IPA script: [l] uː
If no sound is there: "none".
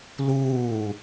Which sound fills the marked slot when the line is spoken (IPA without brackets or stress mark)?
l